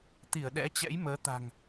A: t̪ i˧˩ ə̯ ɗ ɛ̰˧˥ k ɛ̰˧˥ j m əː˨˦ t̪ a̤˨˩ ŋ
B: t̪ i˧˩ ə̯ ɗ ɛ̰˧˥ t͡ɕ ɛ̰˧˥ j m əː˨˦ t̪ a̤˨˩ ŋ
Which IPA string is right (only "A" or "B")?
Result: B